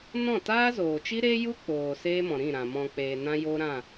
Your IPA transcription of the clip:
n ɔ̃˦˨ t aː˦ z oː˨ t͡ʃ i˦ ɾ e˦ j u˦ k͡p oː˨ s eː˦ m ɔ̃˨ ɾ ĩ˦˨ ɾ ã˨ m ɔ̃˧ k͡p eː˨ n ã˦ j o˦ ɾ ã˦˨

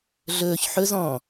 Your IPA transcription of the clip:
ɮ ɵː ç ħ ɵ z ɔ̃ː

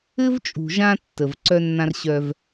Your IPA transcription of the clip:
ɘ˦ v t͡ʃʼ ṳ˨ ʒ ã˦ tː ə˨ v ǀ œ˦ nː ã˦ r ɕ œ˦ v

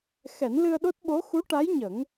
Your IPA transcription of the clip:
x ɛ˨˩˦ n l ɨ˧ ə̯ ɗ o˦˥ t̚ ɓ o˧˥ x u˧˥ ʈ a˧˥ j ɲ ə˨˩˦ ŋ

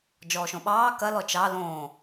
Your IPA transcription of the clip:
d͡ʒ ɔː ʃ õ ɓ ɑː k ɐ l ɔ t͡ʃ ɑ l õː

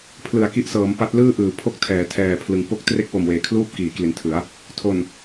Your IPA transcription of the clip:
pʰ l ɯ˨˩ a̯ k i˦˥ ʔ s ɤː˩˦ m p a˦˥ t̚ l ɯː˥˩ ʔ ɯː˩˦ pʰ o˥˩ k̚ tʰ ɛː˩˦ tʰ ɛː˨˩ pʰ l ɯ˩˦ ŋ p o˥˩ k̚ t r e˥˩ k̚ w o˨˩ m w eː˨˩ kʰ l uː˥˩ p̚ k iː˩˦ k l i˨˩ n tʰ ɯ˩˦ a̯ | tʰ o˨˩ n

